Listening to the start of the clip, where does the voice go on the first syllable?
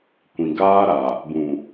low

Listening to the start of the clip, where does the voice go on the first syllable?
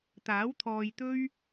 rising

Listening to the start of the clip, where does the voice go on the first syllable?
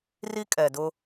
high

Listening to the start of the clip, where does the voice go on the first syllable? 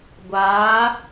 rising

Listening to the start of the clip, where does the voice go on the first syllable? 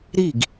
falling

